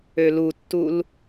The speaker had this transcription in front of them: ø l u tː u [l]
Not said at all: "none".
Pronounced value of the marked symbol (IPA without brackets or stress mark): l